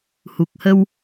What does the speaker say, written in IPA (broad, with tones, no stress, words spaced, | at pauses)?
hu˨˩k̚hə˧w